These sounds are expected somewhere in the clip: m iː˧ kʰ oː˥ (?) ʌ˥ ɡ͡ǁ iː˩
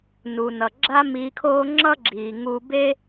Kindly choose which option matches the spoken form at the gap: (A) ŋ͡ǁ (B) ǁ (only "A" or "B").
A